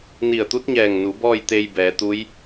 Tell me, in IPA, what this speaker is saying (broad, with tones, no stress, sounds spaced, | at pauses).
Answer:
n i˧˩ ə̯ t̪ u˧˥ t̚ ɲ ɛː˧˩ ŋ n u˩˧ b ɔː˥˨ j t̪ e˧ j b ɛː˩˧ t̪ u˧˥ j